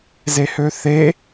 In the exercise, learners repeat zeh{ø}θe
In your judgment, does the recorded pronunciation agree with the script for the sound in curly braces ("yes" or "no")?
yes